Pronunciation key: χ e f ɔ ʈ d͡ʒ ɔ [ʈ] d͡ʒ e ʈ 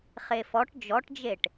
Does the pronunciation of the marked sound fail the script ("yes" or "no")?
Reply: no